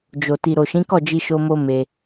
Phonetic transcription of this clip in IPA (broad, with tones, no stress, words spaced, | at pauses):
d͡ʒo˨ ti˨ɾo˨ʃĩ˨˦kɔ˦˨ d͡ʒi˧ʃo˧mo˧ me˧